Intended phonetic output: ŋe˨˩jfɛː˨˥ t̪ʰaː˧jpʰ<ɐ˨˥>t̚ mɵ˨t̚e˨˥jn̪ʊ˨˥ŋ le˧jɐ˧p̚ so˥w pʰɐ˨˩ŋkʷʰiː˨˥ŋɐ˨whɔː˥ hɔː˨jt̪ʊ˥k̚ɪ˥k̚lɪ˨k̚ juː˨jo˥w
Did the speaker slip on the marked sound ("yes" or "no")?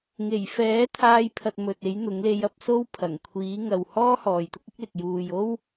yes